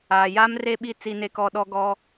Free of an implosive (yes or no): no